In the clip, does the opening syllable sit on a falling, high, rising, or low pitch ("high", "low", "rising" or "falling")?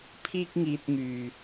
high